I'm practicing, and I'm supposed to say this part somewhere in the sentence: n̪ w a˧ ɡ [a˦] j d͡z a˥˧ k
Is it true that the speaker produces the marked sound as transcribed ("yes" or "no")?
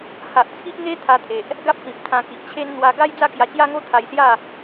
yes